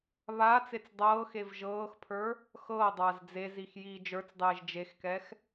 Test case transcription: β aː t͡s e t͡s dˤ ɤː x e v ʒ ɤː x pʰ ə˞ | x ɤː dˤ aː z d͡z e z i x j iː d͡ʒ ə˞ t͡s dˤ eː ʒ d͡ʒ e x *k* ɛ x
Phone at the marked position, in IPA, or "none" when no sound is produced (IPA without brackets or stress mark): k